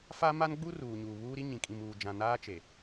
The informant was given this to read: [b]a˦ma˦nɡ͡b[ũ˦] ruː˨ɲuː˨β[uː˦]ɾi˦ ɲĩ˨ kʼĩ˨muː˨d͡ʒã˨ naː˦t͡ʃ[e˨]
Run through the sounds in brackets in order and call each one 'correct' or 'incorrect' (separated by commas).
incorrect, incorrect, correct, correct